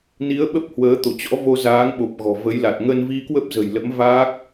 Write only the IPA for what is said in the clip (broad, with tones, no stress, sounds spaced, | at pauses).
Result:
n i˨˦ ə̯ ɓ ə˦˥ p̚ h w əː˨˦ t̪ o˧˩ t͡ɕ ɔ̰˧˥ v o˧ z aː˨˦ ŋ ɓ o˨˩ p̚ ɣ ɔ̤˨˩ v ə˨˦ j l a˨˩ t̚ ŋ ə˧ n v i˧ k w ə˦˥ p̚ z ə̤˨˩ j l ə̰˧˥ m v aː˦˥ k̚